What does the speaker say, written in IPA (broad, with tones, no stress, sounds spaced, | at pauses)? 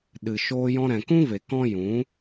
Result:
ɗ ɨ˨ ʃ oː˧ j ɔ̃˧ ɾ ɛ̃˨ k ũ˦ v e˨ k ɔ̃˦ j ũ˨˦